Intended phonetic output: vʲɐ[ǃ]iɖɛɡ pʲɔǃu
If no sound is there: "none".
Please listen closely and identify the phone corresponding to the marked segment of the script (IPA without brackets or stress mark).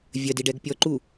d